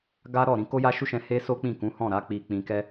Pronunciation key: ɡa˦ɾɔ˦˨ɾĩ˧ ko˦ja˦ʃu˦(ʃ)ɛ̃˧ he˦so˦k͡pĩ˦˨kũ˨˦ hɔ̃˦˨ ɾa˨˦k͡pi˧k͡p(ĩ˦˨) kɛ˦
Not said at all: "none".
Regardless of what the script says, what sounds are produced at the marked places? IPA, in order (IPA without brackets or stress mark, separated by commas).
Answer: ʃ, ĩ˧